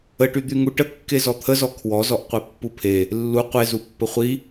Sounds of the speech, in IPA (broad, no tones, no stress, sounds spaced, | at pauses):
ə ʈ y d̪ y ŋ u ʈ ə kː e z ɔ t̪ʰ ə z ɔ kʰ w ɔ z ɔ ʔ qʷ e pː u pʰ e | lː u qʷ e z u pː ə χʷ i